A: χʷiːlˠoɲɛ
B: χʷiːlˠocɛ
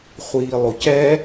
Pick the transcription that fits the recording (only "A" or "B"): B